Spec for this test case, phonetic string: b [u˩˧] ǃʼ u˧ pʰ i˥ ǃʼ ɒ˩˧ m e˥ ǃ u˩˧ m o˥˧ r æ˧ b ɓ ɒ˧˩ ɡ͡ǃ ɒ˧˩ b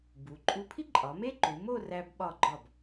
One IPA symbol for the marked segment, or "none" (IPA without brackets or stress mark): u˩˧